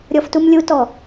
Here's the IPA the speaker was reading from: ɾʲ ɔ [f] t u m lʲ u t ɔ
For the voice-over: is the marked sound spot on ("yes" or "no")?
yes